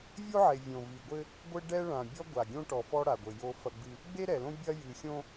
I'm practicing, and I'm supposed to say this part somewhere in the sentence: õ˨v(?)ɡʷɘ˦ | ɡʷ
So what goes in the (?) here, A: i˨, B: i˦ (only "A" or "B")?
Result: A